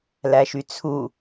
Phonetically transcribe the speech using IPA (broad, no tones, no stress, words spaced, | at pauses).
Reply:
læʃyt͡sʰu